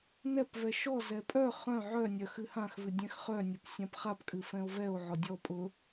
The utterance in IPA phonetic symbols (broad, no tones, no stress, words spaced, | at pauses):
nɛpvɛ ʃɔzɛ pʼœ χœ̃ ʕœnʲœ xɨhãxvɨ dʲɛ̃xχœnʲʊp sʲãpχapkʼɨ fɛ̃o̯vɛo̯ʕɔ dʲɔ pʼʊ